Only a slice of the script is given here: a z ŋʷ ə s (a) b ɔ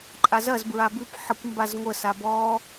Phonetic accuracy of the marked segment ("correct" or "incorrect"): correct